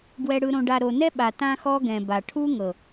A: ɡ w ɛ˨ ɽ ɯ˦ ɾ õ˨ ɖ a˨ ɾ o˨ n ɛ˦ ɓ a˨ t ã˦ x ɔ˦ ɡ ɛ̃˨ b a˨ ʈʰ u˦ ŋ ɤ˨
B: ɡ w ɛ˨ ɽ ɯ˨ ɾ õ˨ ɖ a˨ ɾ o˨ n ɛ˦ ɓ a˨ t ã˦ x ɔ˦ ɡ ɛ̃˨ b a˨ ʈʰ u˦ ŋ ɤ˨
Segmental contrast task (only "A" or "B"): B